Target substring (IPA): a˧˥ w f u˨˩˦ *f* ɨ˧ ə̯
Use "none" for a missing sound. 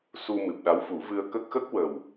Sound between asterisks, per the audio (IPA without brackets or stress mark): v